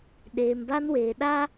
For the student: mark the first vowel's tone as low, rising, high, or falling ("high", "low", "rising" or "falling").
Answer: low